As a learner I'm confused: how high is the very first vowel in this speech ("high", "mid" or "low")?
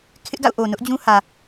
high